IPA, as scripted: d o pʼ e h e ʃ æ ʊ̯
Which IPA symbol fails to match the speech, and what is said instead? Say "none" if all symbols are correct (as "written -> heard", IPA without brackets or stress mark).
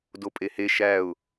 none